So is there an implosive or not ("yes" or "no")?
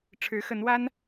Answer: no